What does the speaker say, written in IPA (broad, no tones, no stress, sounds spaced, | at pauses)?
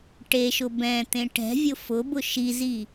ʈ e ʃ ʊ b ɛ̃ t̪ ẽ ʈ ɛ̤ vʲ ʊ f ʊ b ʊ ʃ i z i